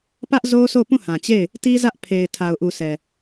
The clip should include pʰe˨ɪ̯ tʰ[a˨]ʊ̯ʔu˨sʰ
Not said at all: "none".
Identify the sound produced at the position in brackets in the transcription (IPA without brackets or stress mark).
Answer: a˨